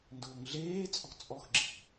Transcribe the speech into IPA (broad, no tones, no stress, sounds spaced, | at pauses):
n d ʊː ŋ ɮ eː t͡sʼ ɔ̤ t͡sʼ ɔ x ɡ͡ǁ i̤